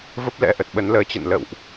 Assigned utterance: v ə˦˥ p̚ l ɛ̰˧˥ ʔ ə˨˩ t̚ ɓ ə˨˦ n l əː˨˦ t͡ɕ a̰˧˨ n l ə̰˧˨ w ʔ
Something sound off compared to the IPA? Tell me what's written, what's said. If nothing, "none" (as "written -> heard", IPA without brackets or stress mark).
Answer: a̰˧˨ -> ə̰˧˨